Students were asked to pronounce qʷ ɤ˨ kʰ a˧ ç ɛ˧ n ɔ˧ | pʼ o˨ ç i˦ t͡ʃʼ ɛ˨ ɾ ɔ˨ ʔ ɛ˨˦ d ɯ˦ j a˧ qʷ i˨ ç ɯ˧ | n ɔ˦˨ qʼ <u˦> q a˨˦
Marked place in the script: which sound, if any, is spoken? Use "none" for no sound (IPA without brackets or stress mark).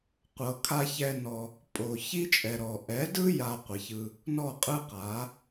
ɯ˦